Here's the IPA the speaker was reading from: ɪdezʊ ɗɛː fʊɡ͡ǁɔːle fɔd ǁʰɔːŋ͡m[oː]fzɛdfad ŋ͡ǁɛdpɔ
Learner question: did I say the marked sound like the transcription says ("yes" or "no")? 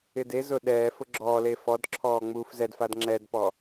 no